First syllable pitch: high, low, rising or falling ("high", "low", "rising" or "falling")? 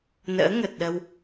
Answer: rising